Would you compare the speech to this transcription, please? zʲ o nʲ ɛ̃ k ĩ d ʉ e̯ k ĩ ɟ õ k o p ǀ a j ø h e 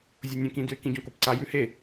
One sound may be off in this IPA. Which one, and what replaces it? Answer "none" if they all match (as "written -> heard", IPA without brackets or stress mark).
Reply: ø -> ʉ